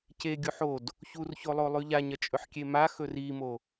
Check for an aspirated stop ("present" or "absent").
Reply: absent